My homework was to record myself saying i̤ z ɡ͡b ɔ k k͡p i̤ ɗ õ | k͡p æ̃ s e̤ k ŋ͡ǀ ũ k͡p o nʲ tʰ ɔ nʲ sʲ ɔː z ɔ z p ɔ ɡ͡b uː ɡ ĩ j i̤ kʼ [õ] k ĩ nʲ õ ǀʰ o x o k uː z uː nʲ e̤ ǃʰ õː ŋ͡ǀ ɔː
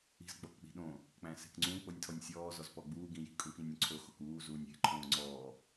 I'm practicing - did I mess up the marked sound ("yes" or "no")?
yes